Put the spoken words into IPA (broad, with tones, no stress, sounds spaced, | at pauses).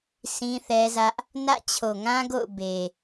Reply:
sʰ ĩ˦ θ ɛ˦ z ä˦ ʔ | n ä̰˦˨ t͡ɕʰ o˨ ŋ ã˦ ɡ o̰˦˨ ʊ̯ b e˨